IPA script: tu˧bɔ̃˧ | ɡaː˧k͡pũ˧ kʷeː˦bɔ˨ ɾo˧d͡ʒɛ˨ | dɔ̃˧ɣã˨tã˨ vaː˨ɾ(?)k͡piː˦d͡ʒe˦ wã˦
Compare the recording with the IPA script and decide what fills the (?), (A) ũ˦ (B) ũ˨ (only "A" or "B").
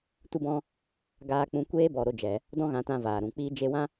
B